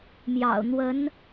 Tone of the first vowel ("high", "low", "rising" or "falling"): low